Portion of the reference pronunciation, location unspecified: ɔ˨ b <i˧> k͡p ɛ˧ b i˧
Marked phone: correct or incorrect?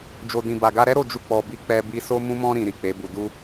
correct